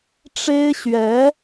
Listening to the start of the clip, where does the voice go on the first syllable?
high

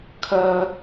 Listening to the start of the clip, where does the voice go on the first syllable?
high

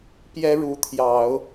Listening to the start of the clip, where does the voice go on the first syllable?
high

